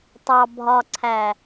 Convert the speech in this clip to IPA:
tˤ ɑ˨ bʱ ɒ˨ ǀʰ æ˨

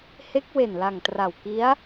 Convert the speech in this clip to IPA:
h e˦˥ k̚ w e˨˩ n l a˨˩ ŋ t r a˨˩ w k i˦˥ a̯

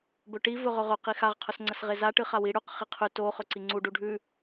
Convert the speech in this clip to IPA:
b ɵ ʈ i v ɵ ʁ ɵ ʁ ɵ q i x a ʁ qʰ ɵ s ŋ͡ǀ ɐ s ʁ e z a ʈ ɨ χ a w i ɽ ʉ q χ i qʰ ʉ t o χ ɵ ǀ i ŋ͡ǀ u ɖ u ɖʱ ʉ

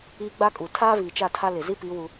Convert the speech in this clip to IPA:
iː˦ ɡ͡b a˦ kʼ u˨ tʰ aː˦ v iː˨ t͡ʃ a˦˨ tʰ a˦ l ɪ˨ z i˦ p i˨˦ w u˦

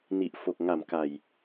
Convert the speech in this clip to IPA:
n i˨˩ ʔ f o˨˩ k̚ ŋ a˨˩ m k a˨˩ j

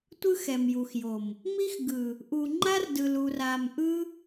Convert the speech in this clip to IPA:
tʷ ɯ˦ x ɛ˨ m j u˨ x j o˨ m | m i˦ x ɡ ɯ˨ | ʔ u˨ ŋ͡ǃ a˦ r d ɯ˨ l u˨ r a˨ m ʔ ɯ˦

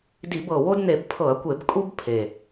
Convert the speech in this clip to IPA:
d i˧˩˧ b ɤ˨˩ w o˦ d n̪ e˧˩˧ b pʰ ɤ˧˩˧ ɐ̯ kʷ e˧˩˧ b kʼ u˦ b pʰ e˨˩

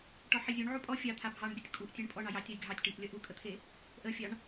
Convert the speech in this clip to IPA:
ʈ ɔ ħ i zʲ u ɳ ʕ u pʼ ɔ fʲ ɑ t̪ʰ a bʱ ɑ ɳ bʲ u tʲ kʼ u ʔ tʲ e ɳ pʼ ɔ ɳ ɑ j ɑ tʲ a j ɡʱ ɑ tʲ ʈ i ʔ lʲ ʌ ʔ u kʼ ə t̪ʰ e | ʔ ə fʲ ɑ ɳ

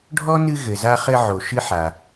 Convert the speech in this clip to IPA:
ɖʱ ɔ˥ n ɨ˦ ɣ ɘ˩ z a˦ χ ɘ˦ ʕ o˩ ʃ ɨ˦ ħ a˩

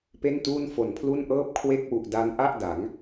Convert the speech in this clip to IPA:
p e˥˩ n t uː˥˩ n f o˨˩ n pʰ l u˥˩ n ʔ ɤː˥˩ p̚ kʰ w e˥˩ k̚ w u˨˩ ʔ d a˦˥ n ʔ a˥˩ ʔ d a˩˦ ŋ

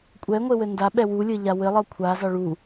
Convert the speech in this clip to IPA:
kʷʼ ɛ ŋʷ e w ɘ n d a ɓ ɛ w u lʲ ɘ ʎ a w ɘ lˠ ɤ kʷʰ a z ɒ ɭ u

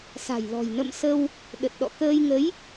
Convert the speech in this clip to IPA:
s a̤˨˩ j l ɔ̤˨˩ j n ə̰˧˨ m s ə˧ w | ɗ ə˨˩ t̚ ɗ ɔ̰˧˨ k əː˧ j ŋ ə˨˦ j

